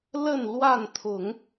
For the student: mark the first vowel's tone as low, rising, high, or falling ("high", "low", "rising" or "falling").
falling